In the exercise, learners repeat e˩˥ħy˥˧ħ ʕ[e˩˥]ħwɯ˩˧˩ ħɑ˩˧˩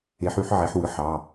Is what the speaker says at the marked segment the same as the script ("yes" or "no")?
yes